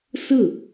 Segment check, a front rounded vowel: absent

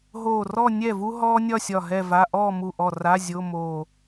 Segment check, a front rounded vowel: absent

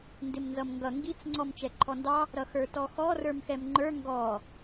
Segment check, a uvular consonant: absent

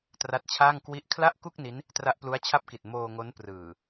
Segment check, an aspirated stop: present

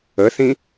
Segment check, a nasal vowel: present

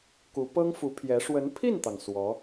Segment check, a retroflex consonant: present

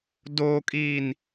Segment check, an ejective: present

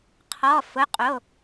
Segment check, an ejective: present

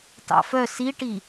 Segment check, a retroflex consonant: present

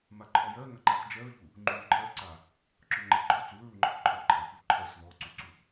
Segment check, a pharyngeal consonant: absent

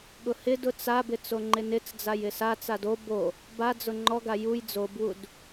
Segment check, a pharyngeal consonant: absent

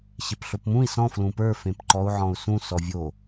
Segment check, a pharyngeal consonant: present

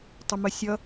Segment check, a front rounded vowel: present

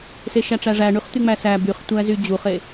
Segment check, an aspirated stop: absent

